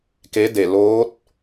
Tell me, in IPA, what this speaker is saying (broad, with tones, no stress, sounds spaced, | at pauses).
k e˧˥ d e˧˩ l oː˧˥ t̚